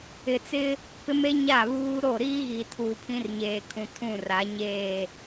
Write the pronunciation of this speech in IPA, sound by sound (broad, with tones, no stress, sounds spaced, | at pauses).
ɪ˨ t͡s ɪ˦ | p ɪ˦ m e˦ ɲ a˦˨ β uː˦ ɾ o˦˨ ɾ iː˦ ɣ i˨ tʰ uː˨ pʰ ĩ˦ r ɲ eː˨ kʰ ũ˨ tʰ ũ˦˨ r a˨˦ ɲ eː˦˨